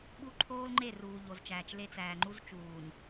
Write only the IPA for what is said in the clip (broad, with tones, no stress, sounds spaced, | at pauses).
ɓ u˦ ǃʰ oː˦ l ŋ͡ǃ e˦˨ r uː˨ ʎ o˨ z t͡ʃ æː˨ t͡ʃ l e˦ t͡s æː˨ ŋ͡ǃ u˦ z t͡ʃ uː˨ ɲ